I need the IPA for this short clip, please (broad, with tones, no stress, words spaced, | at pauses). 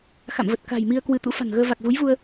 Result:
xa̰˧˨mvə˨˩t̚ ka̤˨˩jmi˧ə̯kwɨ˨˦ t̪ṵ˧˥fa̤˨˩ŋɣəː˧ va˨˩k̚vu˨˦jvu˧ə̯